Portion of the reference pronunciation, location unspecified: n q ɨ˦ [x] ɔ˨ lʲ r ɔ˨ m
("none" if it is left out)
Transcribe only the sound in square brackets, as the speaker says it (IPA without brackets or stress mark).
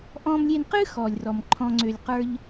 x